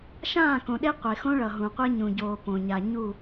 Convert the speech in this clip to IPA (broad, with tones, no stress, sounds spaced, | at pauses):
ʃ ãː˦˨ k õ˨ ɗ e˦ qʷ e˨ x õ˦ ɭ ʌ˨ ɦ ũ˨ qʷ e˦ ɲ ũ˨ ɟ oː˨ p õ˨ ɲ a˨ ɲ u˦˨